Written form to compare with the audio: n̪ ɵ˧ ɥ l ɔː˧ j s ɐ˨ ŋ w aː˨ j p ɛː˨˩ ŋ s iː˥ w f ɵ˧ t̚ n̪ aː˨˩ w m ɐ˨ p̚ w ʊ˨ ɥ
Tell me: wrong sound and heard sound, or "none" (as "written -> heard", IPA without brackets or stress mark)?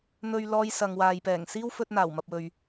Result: ʊ˨ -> ɵ˨